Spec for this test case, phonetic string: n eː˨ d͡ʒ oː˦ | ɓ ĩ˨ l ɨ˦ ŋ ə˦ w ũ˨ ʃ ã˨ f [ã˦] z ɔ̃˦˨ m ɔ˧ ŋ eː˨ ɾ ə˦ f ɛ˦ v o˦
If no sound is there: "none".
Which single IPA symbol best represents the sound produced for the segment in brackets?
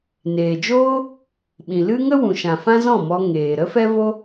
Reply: ã˦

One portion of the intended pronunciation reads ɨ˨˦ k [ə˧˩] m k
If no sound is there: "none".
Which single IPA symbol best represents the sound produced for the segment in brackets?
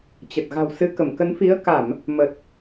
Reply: ə˧˩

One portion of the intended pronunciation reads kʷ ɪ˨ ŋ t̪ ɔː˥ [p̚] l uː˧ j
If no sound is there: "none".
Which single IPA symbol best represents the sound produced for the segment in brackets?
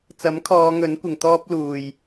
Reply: p̚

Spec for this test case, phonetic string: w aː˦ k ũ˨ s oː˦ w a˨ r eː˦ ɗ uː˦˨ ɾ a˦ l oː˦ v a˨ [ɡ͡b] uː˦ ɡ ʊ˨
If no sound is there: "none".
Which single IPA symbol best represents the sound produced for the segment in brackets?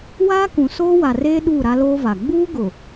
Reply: ɡ͡b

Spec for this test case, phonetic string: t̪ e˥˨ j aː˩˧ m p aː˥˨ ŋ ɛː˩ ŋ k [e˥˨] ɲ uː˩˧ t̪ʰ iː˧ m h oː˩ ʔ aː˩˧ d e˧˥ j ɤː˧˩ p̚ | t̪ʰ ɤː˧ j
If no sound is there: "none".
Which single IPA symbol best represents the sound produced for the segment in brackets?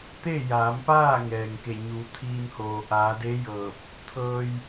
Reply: e˧˩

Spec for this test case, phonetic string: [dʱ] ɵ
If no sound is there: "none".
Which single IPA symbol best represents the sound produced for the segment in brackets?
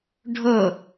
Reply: ɖʱ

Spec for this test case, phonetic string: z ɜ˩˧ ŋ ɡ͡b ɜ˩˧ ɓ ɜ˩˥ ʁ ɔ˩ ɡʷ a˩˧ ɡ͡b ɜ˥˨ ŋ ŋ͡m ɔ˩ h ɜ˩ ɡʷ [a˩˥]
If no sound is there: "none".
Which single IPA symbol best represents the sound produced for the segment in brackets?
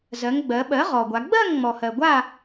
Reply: a˥˨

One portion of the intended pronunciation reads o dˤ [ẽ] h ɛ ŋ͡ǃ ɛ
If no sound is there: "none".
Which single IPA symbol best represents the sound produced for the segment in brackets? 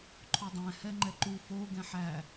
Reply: ɛ̃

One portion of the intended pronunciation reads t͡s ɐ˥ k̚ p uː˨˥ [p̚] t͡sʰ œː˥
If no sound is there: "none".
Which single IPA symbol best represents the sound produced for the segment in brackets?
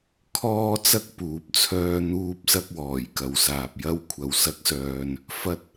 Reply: p̚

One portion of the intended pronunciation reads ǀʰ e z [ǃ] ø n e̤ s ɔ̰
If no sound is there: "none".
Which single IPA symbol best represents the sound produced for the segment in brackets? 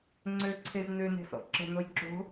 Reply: n̪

